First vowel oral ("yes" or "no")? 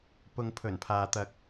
yes